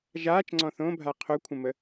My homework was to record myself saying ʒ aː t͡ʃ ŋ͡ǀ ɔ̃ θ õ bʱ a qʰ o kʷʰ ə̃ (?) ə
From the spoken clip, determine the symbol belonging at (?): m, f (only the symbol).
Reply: m